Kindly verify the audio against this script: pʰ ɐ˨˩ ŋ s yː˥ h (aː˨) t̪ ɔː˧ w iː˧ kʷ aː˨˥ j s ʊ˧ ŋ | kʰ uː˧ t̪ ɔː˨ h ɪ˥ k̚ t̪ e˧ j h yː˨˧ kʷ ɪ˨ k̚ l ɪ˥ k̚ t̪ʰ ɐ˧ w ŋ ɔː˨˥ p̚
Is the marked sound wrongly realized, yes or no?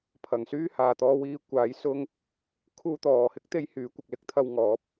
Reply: no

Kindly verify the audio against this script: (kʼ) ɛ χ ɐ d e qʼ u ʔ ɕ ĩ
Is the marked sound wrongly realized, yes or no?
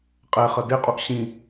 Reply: yes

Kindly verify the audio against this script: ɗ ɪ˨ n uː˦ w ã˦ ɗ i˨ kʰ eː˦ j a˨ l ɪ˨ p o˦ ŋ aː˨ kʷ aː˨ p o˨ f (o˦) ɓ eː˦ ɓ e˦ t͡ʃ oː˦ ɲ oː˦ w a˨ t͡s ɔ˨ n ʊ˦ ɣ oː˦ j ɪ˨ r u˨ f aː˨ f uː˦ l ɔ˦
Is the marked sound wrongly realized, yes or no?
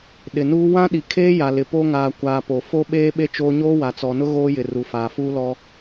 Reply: no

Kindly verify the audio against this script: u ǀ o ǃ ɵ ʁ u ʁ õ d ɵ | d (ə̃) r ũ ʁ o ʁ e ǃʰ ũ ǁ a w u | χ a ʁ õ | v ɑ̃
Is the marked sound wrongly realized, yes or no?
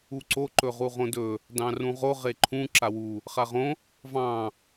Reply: yes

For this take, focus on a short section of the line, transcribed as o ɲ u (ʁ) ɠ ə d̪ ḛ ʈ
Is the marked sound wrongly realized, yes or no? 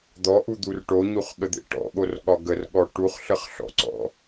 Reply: yes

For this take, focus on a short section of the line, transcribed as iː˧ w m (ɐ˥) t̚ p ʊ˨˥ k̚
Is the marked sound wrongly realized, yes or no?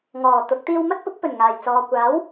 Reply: no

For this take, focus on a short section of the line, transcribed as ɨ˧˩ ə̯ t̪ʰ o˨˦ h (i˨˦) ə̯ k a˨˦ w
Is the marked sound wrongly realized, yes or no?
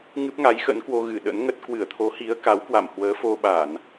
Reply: no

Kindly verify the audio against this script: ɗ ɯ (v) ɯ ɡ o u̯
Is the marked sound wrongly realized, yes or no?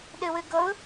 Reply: yes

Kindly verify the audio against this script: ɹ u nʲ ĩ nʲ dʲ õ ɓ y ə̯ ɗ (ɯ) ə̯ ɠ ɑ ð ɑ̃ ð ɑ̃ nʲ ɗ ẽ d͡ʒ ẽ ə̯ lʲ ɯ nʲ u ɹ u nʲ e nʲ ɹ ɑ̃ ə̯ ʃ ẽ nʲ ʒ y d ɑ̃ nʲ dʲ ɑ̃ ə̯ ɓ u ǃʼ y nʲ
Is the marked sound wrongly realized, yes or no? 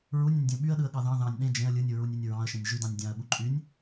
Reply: no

